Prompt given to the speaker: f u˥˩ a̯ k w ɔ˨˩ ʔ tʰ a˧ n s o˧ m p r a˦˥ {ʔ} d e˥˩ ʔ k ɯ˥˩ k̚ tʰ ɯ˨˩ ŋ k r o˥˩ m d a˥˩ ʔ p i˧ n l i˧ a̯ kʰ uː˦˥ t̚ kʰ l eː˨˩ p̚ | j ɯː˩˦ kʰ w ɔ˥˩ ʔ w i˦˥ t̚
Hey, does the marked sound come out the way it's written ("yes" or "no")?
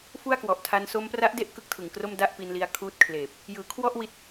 yes